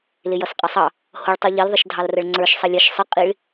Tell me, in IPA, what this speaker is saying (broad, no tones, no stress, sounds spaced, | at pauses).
l ɪ j ʌ s qʼ ʌ sˤ ɑ | h ʊ ɭ tˤ u ʎ i l ðˤ ɪ ʃ dʱ ɑ l r ə ɭ ŋ͡ǀ ə˞ ʃ sˤ ʌ lʲ ə ʃ sˤ ə qʼ i ɭ